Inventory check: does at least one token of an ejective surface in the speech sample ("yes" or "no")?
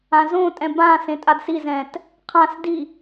yes